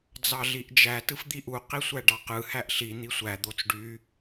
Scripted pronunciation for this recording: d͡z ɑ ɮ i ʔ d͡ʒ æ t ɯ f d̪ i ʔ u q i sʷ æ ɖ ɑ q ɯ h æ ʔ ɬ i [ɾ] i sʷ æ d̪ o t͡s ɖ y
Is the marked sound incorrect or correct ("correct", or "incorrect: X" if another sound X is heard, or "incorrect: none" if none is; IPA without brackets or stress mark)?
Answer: incorrect: n̪